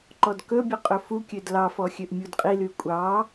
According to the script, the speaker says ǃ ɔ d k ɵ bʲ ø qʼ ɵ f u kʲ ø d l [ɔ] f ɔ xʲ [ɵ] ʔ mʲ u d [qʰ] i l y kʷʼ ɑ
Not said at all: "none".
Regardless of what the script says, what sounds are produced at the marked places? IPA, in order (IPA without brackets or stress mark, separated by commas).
ɑ, ø, qʼ